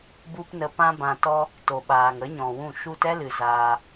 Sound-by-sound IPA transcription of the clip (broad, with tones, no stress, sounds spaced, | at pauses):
b u˦ p n ə˧ p ã˦ b ã˧ t ɔ˦ | t o˨ ɓ aː˨ ŋ ə˨˦ ɲ ɔ̃˨ w ũ˦˨ ʃ u˧ t ɛ˦ l ɨ˨ z aː˧